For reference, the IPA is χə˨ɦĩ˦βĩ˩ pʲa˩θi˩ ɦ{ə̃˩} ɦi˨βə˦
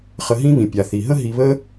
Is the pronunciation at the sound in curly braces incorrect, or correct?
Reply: incorrect